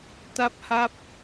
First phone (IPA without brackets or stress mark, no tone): t